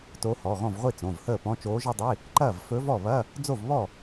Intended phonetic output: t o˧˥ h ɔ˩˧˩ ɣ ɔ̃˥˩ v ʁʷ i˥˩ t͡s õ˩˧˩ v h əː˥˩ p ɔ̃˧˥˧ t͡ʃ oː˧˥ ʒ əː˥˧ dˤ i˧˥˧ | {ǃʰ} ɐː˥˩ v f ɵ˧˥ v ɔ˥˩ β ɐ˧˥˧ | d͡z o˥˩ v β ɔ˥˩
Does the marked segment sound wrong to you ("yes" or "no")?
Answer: yes